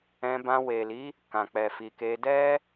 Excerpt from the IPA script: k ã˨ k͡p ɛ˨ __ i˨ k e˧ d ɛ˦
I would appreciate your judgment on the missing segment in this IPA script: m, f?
f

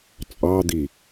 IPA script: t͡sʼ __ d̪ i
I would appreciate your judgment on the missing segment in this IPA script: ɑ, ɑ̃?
ɑ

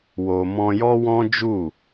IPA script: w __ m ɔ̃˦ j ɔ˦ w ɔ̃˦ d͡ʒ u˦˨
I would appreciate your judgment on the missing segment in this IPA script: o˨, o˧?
o˧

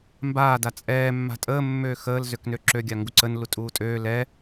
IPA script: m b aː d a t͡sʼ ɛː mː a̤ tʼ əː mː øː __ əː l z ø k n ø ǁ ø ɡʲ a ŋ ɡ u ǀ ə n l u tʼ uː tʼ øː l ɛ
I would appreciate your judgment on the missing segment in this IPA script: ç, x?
x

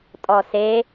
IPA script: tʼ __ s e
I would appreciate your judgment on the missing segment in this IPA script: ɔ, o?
ɔ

